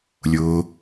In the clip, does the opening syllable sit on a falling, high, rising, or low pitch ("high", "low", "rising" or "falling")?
low